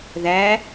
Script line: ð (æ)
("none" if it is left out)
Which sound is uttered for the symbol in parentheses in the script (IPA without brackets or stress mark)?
æ